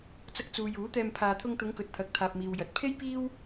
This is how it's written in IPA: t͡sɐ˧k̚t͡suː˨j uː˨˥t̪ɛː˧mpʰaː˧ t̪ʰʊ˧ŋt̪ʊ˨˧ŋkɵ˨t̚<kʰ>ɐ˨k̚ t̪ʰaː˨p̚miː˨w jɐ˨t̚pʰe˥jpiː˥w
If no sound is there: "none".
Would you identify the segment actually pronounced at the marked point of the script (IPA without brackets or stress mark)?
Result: t̪ʰ